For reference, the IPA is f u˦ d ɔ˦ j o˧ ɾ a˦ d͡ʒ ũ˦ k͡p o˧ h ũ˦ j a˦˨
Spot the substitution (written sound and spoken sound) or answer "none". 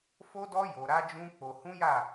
u˦ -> o˦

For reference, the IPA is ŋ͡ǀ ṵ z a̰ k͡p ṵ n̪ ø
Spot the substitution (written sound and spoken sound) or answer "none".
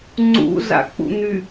ø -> y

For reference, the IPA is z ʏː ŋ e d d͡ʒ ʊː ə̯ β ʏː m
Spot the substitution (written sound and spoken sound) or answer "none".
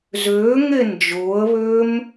d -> n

